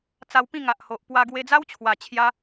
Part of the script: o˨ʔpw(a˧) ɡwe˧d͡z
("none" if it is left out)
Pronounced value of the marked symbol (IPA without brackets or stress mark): a˧